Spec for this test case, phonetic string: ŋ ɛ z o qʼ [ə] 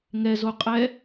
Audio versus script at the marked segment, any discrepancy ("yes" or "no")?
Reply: yes